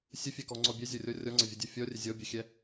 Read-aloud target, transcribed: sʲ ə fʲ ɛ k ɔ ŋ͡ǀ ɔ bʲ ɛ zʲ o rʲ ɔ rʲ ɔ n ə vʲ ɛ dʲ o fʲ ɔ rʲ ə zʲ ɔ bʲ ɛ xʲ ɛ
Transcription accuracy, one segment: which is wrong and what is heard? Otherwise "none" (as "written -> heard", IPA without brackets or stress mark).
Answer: n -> ŋ͡ǀ